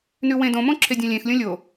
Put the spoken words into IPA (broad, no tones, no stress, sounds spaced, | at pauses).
n ʉ w ẽ d õ m õ ǁʰ e dʲ ẽ lʲ ẽ x lʲ õ lʲ o